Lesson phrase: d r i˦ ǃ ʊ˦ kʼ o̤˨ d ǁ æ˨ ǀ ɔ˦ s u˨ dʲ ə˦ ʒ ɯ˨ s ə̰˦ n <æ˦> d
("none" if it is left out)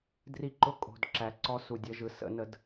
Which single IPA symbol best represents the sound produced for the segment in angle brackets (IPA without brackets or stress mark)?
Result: ə˦